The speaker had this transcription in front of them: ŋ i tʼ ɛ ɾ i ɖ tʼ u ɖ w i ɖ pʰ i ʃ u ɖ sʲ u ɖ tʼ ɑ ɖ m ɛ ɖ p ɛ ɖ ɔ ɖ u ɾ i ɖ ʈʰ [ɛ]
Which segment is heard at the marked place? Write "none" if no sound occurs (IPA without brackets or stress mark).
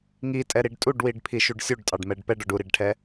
ɛ